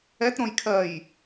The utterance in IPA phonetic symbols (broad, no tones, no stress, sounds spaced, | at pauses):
ɛ t ɾ õ j kʰ ɜ j